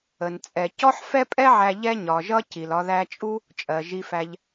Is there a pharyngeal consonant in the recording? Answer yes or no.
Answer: yes